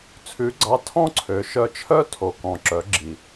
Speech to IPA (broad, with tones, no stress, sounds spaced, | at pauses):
t͡sʰ ʉ˧˥ ɡ͡ǀ ɑ˧˥ tʰ ɔ̃˥ ǀʰ ø˩˧ ʃ œ˧ t͡ʃʰ œ˥ tʰ o˩ k ɔ̃˩ ǁ œ˩˧ ɡ͡ǁ i˩